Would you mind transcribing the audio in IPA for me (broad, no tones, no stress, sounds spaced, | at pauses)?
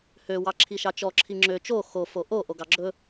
h ø w ɑ ǁʰ i ʃ ɑ t͡ʃ ɔ ǁʰ i ŋ͡ǁ ø t͡ʃ o x o f o ʔ o ʔ o ɡ ɑ ɡ͡ǁ ɵ